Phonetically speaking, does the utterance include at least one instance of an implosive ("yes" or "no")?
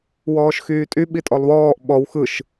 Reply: yes